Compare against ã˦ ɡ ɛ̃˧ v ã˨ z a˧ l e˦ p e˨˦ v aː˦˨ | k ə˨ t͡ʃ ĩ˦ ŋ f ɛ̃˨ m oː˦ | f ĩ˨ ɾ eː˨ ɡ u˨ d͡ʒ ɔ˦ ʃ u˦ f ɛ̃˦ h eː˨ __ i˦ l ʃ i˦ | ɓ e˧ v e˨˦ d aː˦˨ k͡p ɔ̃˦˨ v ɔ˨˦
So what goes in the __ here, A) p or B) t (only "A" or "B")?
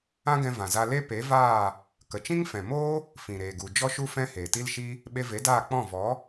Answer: B